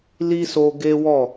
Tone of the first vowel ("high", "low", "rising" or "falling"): high